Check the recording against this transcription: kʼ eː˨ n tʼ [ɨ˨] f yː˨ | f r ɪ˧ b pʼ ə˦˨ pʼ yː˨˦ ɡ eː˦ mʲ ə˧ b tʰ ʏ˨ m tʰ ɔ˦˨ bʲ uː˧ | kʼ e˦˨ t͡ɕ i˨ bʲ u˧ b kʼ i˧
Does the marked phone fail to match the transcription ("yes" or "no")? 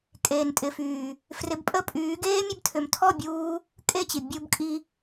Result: yes